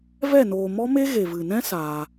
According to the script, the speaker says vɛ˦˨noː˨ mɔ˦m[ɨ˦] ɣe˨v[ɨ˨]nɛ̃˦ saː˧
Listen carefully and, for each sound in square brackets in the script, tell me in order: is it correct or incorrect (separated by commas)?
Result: incorrect, correct